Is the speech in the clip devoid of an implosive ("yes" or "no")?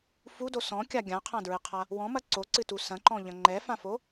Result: yes